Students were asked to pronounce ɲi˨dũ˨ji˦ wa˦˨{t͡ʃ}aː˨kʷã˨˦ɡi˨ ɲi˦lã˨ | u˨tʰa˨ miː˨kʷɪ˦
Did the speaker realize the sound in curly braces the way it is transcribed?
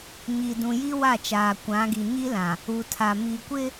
yes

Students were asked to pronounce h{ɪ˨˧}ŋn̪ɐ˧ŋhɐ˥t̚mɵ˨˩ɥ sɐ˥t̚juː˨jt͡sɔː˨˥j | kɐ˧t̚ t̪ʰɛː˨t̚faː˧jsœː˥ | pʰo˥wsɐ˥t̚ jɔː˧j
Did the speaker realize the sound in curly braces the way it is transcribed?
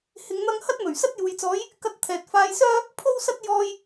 yes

